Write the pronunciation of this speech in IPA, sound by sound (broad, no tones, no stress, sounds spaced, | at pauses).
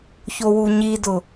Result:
ç o w u ɲ i d ʊ